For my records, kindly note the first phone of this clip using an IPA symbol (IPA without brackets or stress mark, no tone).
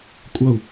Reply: kʷʼ